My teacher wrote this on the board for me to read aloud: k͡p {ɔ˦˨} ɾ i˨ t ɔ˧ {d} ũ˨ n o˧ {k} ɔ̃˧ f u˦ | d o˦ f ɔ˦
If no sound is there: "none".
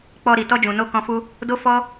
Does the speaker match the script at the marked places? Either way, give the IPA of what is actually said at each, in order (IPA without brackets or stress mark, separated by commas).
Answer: ɔ˧, d͡ʒ, k